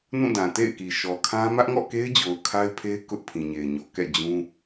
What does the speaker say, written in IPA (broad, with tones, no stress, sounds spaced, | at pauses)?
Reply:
n ũ˦˨ d ã˨ t ḛ˦˨ ɪ̯ k i˨ ʃ ɔ˨ kʰ ã˦ m ä˦ ʔ ŋ ɔ̰˦˨ k e˦ ɪ̯ d͡ʑ o˨ ʊ̯ kʰ a˦ ɪ̯ pʰ e˦ ɪ̯ k ʊ˦ ʔ pʰ ĩ˨ ɲ e˨ ɪ̯ ɲ o˨ k ɛ̰˦˨ d͡ʑ ũ˦